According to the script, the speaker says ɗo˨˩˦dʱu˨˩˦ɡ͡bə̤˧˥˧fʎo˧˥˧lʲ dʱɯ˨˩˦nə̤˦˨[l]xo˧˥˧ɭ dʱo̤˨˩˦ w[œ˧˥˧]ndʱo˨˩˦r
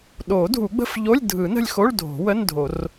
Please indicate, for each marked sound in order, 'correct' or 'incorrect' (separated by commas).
incorrect, incorrect